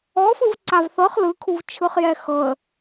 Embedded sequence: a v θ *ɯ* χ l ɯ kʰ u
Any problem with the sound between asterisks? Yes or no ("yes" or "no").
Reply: yes